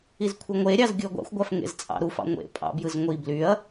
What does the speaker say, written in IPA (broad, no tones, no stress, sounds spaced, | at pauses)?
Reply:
i z kʷʰ ɯ ŋʷ e ɾʲ ɑ z ɡʲ u ɐ̯ ɡʷ ɑ̰ xʷ ɡʷ æ f ŋ ḛ z t͡sʼ ɑ̰ ɾ u f ɑ̰ ŋʷ ḛ pʼ ɑ̰ b j ɯ z ŋʷ i b l y ɐ̯